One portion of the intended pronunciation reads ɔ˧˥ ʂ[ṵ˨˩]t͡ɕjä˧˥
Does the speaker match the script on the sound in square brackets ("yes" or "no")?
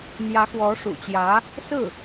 yes